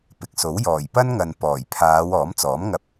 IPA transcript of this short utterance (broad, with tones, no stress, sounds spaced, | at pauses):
p ɪ˨ k̚ s o˨˥ w j ɔː˨˩ j p ɐ˥ n ŋ ɐ˨ n p ɔː˨˩ j pʰ aː˨˧ w ɔː˨˥ m t͡s ɔː˨˥ m ŋ ɐ˧ p̚